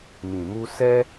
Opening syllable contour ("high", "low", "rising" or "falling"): low